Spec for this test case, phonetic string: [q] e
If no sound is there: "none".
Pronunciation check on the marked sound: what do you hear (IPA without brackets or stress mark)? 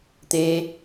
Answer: t̪